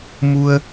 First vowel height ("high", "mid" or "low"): high